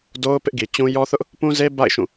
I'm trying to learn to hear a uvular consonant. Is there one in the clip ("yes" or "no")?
no